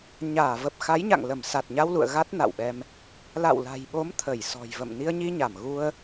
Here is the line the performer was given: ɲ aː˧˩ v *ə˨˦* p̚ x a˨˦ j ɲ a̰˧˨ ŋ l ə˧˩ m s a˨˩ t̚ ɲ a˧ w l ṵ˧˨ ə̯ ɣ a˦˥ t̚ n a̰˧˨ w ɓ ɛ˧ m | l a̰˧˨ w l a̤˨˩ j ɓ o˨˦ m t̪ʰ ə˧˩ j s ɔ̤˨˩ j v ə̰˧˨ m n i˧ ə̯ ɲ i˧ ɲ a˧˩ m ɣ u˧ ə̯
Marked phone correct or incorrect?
incorrect